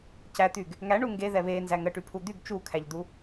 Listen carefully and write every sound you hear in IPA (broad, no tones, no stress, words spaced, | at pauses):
cæt̪yɡ | ŋæɳu ŋɡe ðɛβenzæ ŋəʈypʰu d̪yɡ t͡ʃukʰæʎd̪u